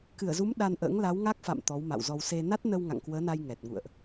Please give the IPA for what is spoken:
kɨ˧˩ə̯zu˨˦m ɗa˧nʔə̰ː˧˥ŋ la˨˦wŋa˦˥k̚fa̰˧˨m t̪ɔ˨˦wma̰˧˨wzɔ˧w se˧ na˦˥t̚nə˧w ŋa̰˧˨ŋkwəː˨˦na˧j ŋɛ˨˩t̚ŋṵ˧˨ə̯ʔ

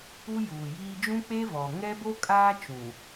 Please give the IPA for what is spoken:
u˦juː˨jiː˦ d͡ʒũ˦k͡pe˦ vɔ˨ ŋɛ˦bo˦kʼaː˦ t͡ʃũ˨

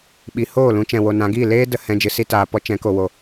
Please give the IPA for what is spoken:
ɓi˨˦hoː˦˨lũ˧ t͡ʃɛ̃˨wo˨nã˨˦ɡiː˦˨ leː˦də˨ hɛ̃˧d͡ʒɨ˨ si˦taː˨pɔ˦ t͡ʃɛ̃˨˦ko˨wo˨

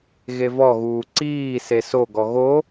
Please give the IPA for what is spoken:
ɣevɔɣuː ǀiː sesoɡɔ ɣo

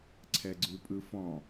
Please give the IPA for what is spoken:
ǀʰɛɡ͡ǀʉpʼɯfɔ̃

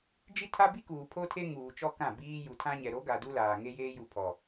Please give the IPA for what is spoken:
d͡ʒi˦tʰa˦bi˦ kuː˨pʰo˦tʰe˦ ŋuː˨t͡ʃɔ˦ kã˦˨biː˦ ju˨tʰã˦ɲɛ˨ ɾo˨˦ɡa˨ du˦laː˨ŋe˦jeː˦ ju˨pʰɔ˨

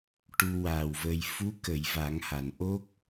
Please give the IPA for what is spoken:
ʈu˧waː˨˩wvə˧j fu˧˥kə˨˩˨j va˨˩˦ŋha˨˩˨n ʔo˦˥k̚

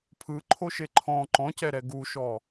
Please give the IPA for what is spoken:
pʰɯǃʰoʃe ǃʰɔ̃ ǃɔ̃cɛɾɛ ɡuʃɔ

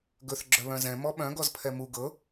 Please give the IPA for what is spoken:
ɡɵθ ɡ͡ǁœβœ̃zɛ̃ mɔɓœ̃ɡ ɔzpʰɛmu ɡɤ

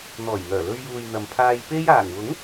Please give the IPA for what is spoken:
n̪ɔː˨˩jŋœː˨˩lɵ˧ɥjuː˨j n̪ɐ˨mpʰaː˧jpe˥j aː˨˩ŋwʊ˨˥ŋ

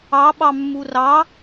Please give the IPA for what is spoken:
ɑɓɑmːu rɑ

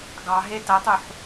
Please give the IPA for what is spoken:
ɡɑɦe tɐtˤuħ

